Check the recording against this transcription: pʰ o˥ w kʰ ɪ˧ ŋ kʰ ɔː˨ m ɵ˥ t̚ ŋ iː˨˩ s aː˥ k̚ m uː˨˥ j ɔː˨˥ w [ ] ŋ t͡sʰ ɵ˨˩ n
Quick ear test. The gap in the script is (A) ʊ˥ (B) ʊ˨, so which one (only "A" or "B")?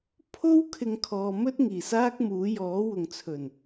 B